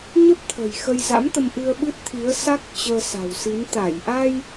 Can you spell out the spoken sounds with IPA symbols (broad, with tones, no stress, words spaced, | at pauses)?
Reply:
ɲə˦˥p̚t̪ʰə̤˨˩j xə˧jza̰˧˥mt̪ə˧mʔɨ˧ə̯ ɓɨ˦˥t̚t̪ʰi˨˦ə̯sa˦˥k̚ t͡ɕəː˧sa̤˨˩wsi˨˦n t̪a˧˩jʔa˧j